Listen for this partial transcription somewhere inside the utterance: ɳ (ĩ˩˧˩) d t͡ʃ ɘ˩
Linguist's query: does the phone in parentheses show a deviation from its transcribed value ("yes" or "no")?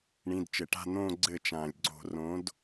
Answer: no